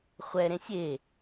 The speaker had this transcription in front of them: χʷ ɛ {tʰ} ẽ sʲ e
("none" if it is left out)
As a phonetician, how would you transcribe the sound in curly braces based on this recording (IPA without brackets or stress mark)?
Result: ɾ